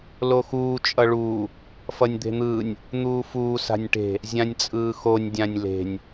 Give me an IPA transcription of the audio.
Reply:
l o x uː t͡ʃʼ ʌ ɭ uː | f ʌ nʲ d̪ e̤ n̪ ɯː nʲ | n̪ uː f uː s a̤ nʲ ʈ e̤ | zʲ ã nʲ t͡sʼ ɯː x o nʲ dʲ ã nʲ l e̤ nʲ

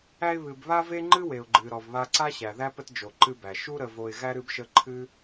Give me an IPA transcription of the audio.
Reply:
æ˦ ɪ̯ β ɨ˨ b β a˥ v e˥ ŋ͡ǃ ɨ˥ w e˨ ʊ̯ ɡ͡ǃ ɨ˨ ɾ ɔ˨ v β a˦ ǀ a˥ ɕ æ˨ ð æ˥ p ə˦ t d͡ʒ o˨ ǃ ɨ˦ b æ˨ ʃ u˥ ɾ ə˦ v o˦ ɪ̯ ɣ æ˥ ɾ ɨ˦ b ʃ ə˦ ǃʰ ɨ˥

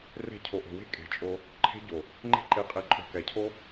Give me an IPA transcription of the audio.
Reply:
r e̤˧ cʰ o˨ ʔ o̤˨ w e̤˦ kʼ e̤˨ t͡ʃʼ o˧ | ǃʰ e̤˦ ɟ o˨ | ŋ͡ǃ e̤˧ ǃ e˨ qʼ e˨ ǃʼ o̤˨ k ɛ˨ cʰ o˦

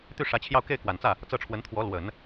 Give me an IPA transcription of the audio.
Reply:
t̪ y˥˩ ʂ ä˧˥ t͡ɕʰ j ɑ˥˧ ʊ̯ k e˥˩ ɪ̯ k w a˨˩ n t͡s ä˥˩ | t͡s ɤ˥˩ ʈ͡ʂʰ w ə˧˥ n t̪ʰ w ɔ˧˥ l w ə˨˩˦ n

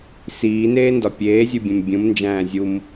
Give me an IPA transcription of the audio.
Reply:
s iː n eː n d ɒ pʲ eː zʲ u bʲ ẽ m bʲ ũ m n d͡ʒ æ̃ː zʲ u m

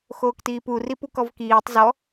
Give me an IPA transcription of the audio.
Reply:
x oː k t iː p u r i p u k ɔ v k iː tˤ z ɔ

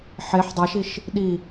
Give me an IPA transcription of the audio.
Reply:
ħ e ħ dˤ a ʃ i ʃ | ɗ i

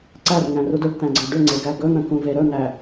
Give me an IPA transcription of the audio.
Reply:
ǀ æ r ŋ æ̃ r u d ɵ ɖ t̪ æ̃ ɡ͡ǀ ɜ ɖ ʏ ŋ͡ǀ e ɡ æ ɡ ɵ n̪ ə̃ k ũ v e ɾ ɵ n̪ æ

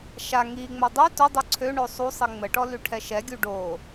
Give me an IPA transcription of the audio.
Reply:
ʃ a ŋ i ŋ͡m o dˤ y t o dˤ u ǀʰ ø ɳ o sˤ u sˤ i ŋ͡m ə ʈ ɔ l y ʈʰ ɛ ʃ ɛ ɡʲ u ɖ o

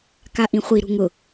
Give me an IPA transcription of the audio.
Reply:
k a ʔ ĩ χʷ i ɾ ṳ ŋ ʊ

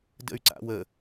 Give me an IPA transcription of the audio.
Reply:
d ə̰ y̯ ǀ a̰ w ə

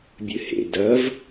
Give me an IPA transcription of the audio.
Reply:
bʲ ɨ h ḛ d ɐ v

